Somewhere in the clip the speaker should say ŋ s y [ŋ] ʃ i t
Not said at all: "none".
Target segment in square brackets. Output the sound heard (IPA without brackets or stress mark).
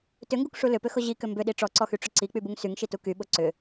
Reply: ŋ